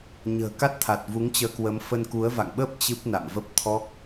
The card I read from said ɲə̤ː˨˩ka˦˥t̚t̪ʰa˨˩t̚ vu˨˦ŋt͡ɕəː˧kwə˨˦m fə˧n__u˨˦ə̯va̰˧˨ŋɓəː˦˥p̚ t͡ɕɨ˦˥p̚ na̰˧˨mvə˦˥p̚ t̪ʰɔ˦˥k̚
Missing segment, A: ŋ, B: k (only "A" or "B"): B